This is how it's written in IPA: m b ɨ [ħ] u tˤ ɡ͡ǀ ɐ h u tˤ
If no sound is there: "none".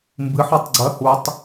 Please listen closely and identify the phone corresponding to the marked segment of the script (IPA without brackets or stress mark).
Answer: ħ